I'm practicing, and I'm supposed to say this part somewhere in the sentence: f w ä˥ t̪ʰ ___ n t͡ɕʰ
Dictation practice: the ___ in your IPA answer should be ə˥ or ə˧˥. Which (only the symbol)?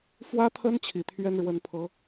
ə˥